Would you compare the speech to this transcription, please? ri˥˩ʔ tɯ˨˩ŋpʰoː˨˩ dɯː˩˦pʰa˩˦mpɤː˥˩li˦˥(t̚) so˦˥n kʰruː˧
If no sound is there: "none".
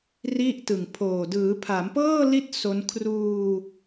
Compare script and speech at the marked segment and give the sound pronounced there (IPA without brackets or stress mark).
t̚